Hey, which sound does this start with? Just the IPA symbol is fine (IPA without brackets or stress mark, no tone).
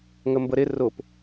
ŋ